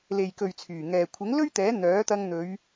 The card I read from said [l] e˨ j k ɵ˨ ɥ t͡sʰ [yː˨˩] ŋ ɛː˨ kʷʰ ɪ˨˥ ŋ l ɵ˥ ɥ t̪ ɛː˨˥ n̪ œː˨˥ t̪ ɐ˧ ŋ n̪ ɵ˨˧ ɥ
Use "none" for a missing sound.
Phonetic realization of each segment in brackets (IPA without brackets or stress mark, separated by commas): l, yː˨˩